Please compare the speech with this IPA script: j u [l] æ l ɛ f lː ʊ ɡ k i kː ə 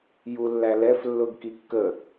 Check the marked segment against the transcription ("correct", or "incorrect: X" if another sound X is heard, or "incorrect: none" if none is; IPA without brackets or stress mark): incorrect: lː